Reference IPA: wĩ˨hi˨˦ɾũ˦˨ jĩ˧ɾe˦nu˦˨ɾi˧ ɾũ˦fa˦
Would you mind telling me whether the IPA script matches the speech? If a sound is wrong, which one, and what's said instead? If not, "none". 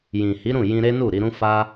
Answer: w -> j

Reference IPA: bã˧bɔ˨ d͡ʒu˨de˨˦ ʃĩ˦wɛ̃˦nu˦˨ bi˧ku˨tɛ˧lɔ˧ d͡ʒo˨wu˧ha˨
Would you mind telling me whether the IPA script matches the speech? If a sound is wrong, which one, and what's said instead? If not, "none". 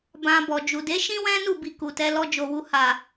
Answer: none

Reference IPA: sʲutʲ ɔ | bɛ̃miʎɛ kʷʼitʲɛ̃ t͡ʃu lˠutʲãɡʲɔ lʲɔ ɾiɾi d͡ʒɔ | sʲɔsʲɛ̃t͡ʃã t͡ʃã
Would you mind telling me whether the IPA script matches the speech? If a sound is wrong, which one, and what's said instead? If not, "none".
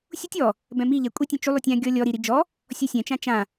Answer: none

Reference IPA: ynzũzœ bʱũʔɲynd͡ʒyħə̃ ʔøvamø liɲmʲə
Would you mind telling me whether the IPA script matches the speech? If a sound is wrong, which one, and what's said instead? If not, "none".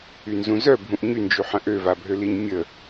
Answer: m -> bʱ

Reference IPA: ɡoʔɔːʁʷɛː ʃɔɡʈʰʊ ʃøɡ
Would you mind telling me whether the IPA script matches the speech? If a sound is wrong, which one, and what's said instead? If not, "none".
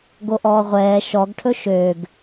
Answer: ʊ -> ɵ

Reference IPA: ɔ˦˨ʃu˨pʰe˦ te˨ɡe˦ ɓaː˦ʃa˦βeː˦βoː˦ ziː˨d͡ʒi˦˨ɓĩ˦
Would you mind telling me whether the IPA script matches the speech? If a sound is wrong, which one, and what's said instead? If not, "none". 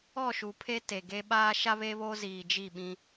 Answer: none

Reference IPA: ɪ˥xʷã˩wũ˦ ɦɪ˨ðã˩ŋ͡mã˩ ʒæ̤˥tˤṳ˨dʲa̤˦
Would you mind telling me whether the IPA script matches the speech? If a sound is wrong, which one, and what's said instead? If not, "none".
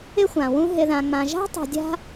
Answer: æ̤˥ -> a̤˥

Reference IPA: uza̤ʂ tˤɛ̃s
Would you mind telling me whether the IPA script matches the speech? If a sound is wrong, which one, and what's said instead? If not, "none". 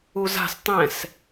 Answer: ʂ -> s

